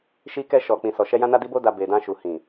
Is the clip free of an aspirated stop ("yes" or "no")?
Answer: yes